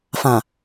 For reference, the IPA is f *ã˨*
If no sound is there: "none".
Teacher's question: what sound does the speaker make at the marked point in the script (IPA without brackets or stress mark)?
ã˨